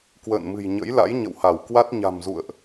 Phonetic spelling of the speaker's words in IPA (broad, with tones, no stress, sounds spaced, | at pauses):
k w ə̰ː˧˨ n m ɨ̤˨˩ j ɲ ə̰˧˥ j l a̰˧˥ j ɲ ə̰˧˨ w h a˧˩ w k w a˦˥ t̚ ɲ a̤˨˩ m z ṵ˧˨ ə̯ ʔ